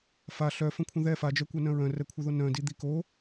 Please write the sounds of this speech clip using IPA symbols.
f a ɬ œ f ə̃ kʷʰ ə̃ ð ɛ f a d͡ʒ œ kʷ œ n œ̃ ɹ œ̃ r ɛ kʷʰ ə˞ ð o n œ̃ d i d̪ i k o

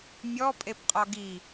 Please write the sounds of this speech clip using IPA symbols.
mʲ ɔ pʼ e p qʼ ɔ ɡ i

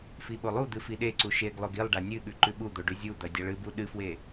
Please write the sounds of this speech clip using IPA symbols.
f i ɓ o lˠ u d̪ ɨ f i ɗ e ǀ u ʃ e ɡ lˠ o ɡ i lˠ ɖ a nʲ ɨ ɠ ʉ ǃ ʉ ɓ u d̪ o ɖ ʉ zʲ u d̪ ɐ dʲ a ɭ ɨ b u ɗ ɨ f w e

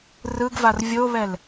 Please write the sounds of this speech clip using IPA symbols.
r ɯ ɡ v a r vʲ o β ɛ l

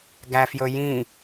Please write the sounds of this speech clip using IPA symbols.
ɡ æ f j ɵ j ĩ

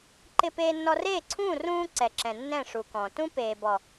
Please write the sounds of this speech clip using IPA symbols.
ǃ ɪ˦ p eː˦ nː ɔ˦ r eː˦˨ ǀʰ ũː˦˨ r ũː˦ ǀ ɛ˨ ǁ ɛ̃˨ nː ɛ̃˦˨ ʂ u˨ k ɔ̃˨ t ũ˦ p eː˨ b ɔ˨

